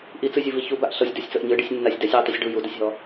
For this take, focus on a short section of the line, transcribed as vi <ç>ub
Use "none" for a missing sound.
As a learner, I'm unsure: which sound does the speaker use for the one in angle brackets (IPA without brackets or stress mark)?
ç